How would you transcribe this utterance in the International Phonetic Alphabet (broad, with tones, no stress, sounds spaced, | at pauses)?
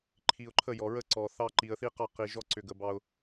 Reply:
ǃʰ i˨ ʊ̯ ǃʰ ə˦˨ j ɔ˨ ɹ ə˦ ǀ ɔ˨ θ ɑ˦ ǃ i˨ ə̯ θ i˦ q ɑ˦˨ q i˨ ʒ ɔ˦ ǀ ʏ˨ ɡ ə˨ b ɑ˦ ʊ̯